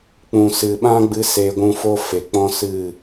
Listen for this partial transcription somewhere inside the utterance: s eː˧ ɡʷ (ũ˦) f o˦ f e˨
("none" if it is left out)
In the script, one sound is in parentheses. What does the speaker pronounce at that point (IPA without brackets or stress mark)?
ũ˧